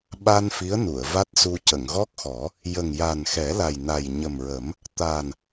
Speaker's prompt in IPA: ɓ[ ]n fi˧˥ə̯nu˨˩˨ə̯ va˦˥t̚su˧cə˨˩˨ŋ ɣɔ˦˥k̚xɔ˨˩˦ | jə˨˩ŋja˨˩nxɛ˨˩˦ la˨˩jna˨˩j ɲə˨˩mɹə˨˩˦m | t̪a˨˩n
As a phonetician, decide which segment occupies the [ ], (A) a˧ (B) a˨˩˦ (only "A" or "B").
A